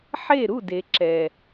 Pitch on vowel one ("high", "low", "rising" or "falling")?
falling